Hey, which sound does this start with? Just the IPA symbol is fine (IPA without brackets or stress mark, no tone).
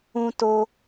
ũ